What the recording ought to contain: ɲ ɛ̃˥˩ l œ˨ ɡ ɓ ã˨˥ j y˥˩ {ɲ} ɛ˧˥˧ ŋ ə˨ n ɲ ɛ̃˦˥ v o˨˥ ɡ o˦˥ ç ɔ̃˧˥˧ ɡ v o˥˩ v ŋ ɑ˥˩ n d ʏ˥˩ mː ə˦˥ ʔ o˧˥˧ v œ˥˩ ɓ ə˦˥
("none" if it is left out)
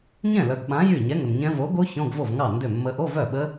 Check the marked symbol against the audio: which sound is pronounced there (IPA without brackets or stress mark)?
ɲ